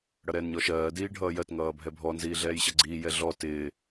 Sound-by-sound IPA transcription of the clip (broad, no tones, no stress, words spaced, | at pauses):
ɽʌɾɛːnɲɔʃɜː diːɖʱʌːjɜt ŋʌːbʱɛbʱɔ nziːɮɛːjɕʌɡ͡ǀiː jɛɮɔ tɪː